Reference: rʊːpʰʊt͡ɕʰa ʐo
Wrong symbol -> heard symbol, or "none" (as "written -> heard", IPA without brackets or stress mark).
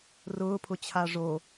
none